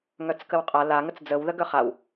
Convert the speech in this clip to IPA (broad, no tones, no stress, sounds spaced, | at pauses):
ŋ œ t͡s k ə w qʼ a l a ŋ ə t͡s d͡z ə w ð ə ɡ œ χ a w